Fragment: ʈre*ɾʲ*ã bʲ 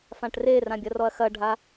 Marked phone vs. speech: incorrect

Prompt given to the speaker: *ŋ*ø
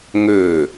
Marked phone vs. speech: correct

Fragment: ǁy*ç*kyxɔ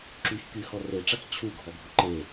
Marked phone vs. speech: correct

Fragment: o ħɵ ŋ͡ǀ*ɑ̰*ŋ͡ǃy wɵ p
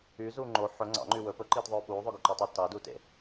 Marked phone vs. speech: correct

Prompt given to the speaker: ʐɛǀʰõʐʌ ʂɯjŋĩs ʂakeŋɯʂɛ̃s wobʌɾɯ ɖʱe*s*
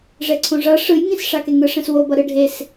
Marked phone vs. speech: correct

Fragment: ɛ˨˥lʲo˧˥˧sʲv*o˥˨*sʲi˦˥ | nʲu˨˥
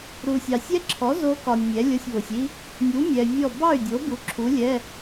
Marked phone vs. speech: incorrect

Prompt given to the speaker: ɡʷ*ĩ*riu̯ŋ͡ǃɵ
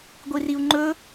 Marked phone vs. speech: incorrect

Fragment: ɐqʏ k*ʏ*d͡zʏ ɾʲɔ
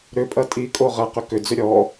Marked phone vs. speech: correct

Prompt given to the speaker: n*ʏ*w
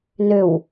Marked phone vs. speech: correct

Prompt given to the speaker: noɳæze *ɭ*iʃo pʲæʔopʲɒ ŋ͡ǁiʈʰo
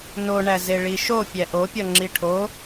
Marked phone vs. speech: correct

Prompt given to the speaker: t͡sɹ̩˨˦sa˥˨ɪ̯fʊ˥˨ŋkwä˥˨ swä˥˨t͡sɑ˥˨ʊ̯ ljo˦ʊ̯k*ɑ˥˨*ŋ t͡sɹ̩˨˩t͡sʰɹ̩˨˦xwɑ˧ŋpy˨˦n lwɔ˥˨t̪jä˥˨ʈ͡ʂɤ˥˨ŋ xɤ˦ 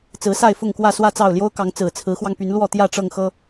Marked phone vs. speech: incorrect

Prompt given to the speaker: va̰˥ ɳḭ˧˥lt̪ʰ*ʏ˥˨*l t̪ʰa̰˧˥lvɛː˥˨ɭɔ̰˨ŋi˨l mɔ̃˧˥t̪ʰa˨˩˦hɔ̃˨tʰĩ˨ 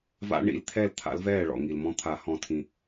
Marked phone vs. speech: incorrect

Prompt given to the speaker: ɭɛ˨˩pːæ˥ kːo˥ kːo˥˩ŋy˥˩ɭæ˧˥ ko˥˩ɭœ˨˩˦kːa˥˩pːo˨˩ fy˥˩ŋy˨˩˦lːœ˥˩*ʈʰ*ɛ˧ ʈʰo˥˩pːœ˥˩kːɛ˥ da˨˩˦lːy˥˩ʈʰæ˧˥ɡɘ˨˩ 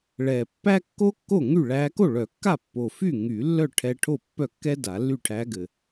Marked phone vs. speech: correct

